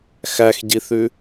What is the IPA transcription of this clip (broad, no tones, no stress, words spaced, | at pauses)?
xæxɟiθʉ